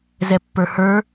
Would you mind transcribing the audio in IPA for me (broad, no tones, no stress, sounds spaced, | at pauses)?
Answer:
z ɛ pː ə˞ h ə˞